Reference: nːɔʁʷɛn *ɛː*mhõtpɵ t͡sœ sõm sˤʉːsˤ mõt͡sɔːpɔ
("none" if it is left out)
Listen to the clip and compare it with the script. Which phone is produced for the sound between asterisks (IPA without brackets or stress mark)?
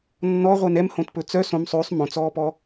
ɛ